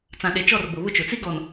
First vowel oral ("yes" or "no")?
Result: no